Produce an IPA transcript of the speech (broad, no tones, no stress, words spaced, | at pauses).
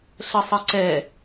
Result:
ɬəsˤəǀɛ